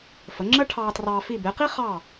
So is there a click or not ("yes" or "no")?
yes